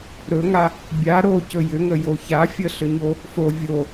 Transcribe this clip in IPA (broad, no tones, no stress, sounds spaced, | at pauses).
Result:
ɾ ɵ ŋ a | bʲ a ɾ o c ɵ j ʏ ŋ ə j o ç a fʲ ə ɬ ʏ ɲ o | f o vʲ o